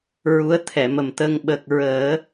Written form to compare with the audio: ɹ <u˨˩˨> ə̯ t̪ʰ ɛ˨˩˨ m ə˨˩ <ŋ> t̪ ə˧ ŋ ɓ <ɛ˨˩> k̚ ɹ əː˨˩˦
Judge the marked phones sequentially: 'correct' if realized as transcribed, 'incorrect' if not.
incorrect, incorrect, incorrect

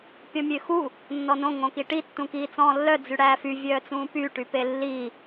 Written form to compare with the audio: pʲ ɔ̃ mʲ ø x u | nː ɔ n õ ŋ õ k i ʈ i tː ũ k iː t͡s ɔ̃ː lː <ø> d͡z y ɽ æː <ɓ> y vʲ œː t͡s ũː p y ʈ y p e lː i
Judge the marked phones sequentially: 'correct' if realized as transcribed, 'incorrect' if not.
incorrect, incorrect

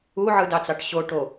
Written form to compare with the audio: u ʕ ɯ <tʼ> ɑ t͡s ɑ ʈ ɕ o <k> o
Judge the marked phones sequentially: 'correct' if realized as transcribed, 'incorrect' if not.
incorrect, incorrect

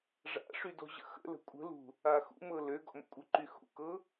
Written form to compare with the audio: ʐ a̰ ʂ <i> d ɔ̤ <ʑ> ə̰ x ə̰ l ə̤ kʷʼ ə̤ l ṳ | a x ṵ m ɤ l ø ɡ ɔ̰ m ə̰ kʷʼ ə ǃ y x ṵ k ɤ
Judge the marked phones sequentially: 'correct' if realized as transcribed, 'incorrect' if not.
incorrect, correct

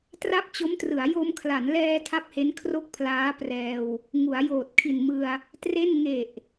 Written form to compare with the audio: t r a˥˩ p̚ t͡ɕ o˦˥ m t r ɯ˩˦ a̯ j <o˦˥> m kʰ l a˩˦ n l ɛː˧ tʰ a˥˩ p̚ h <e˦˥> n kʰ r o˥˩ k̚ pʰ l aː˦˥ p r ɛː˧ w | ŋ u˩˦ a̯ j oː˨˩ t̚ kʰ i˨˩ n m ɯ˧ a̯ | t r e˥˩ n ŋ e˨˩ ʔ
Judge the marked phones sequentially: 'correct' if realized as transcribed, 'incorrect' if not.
incorrect, correct

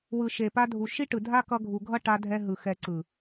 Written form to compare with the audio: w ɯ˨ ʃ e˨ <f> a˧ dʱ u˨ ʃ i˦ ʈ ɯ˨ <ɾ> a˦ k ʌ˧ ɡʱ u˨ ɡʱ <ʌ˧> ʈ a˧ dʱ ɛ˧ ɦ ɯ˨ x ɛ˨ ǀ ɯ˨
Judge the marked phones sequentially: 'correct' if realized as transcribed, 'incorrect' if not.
incorrect, incorrect, incorrect

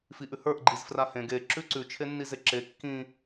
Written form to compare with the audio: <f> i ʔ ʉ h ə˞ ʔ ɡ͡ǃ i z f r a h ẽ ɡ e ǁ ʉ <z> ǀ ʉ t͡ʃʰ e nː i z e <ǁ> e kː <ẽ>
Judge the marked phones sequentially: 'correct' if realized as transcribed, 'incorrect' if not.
correct, incorrect, correct, incorrect

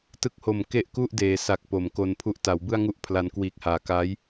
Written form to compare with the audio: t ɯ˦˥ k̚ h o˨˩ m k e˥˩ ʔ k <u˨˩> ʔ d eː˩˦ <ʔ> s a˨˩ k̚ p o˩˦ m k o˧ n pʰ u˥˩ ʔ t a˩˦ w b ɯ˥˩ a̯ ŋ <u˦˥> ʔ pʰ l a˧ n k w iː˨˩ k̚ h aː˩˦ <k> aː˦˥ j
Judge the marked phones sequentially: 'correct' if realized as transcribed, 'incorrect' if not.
incorrect, incorrect, incorrect, correct

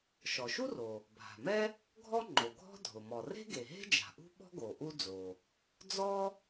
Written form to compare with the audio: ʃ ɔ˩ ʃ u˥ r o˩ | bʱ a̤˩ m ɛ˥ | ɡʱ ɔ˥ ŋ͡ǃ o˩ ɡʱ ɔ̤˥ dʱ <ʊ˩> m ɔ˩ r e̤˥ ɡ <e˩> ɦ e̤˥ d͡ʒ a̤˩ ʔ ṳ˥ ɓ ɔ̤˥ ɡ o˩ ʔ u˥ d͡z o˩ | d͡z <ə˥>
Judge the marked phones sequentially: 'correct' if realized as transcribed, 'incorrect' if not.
correct, correct, incorrect

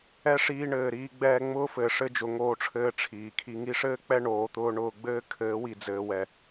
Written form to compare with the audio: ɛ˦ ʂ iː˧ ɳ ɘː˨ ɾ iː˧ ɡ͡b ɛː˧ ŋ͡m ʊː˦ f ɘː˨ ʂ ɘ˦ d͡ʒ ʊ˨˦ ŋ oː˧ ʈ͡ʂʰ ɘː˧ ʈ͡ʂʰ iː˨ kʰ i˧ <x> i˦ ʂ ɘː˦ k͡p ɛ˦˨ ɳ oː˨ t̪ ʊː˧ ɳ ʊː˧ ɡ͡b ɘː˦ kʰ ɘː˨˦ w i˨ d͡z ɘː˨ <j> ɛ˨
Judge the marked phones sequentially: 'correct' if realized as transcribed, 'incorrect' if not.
incorrect, incorrect

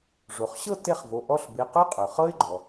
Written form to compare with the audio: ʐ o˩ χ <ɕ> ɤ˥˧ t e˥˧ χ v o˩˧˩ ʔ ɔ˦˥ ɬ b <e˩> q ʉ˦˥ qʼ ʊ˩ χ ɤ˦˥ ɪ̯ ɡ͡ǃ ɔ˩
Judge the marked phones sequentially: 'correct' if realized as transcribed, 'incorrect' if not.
correct, incorrect

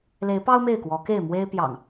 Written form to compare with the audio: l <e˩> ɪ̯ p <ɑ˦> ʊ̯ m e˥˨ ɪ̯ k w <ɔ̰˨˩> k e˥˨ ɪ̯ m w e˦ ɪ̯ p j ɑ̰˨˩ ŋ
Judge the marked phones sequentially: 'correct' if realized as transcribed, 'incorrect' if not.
incorrect, correct, incorrect

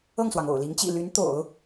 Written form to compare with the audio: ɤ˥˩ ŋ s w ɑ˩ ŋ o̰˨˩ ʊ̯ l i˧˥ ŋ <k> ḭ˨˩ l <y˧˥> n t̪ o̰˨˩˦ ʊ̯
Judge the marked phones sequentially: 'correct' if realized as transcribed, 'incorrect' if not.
incorrect, correct

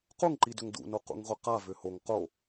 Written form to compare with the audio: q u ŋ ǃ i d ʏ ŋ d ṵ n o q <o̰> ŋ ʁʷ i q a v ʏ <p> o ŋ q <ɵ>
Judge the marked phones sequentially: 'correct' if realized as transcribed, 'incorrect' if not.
incorrect, incorrect, incorrect

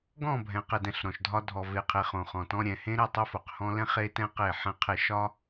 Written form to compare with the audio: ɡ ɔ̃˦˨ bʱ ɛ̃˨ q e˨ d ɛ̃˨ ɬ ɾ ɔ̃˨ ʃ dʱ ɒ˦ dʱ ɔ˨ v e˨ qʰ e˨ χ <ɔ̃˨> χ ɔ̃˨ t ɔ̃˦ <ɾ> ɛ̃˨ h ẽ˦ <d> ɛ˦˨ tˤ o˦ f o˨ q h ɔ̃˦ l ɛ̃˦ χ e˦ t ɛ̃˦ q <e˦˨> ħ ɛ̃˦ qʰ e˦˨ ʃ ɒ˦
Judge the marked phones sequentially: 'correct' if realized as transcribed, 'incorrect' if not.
incorrect, incorrect, incorrect, correct

